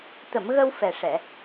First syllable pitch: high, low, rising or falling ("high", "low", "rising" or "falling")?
low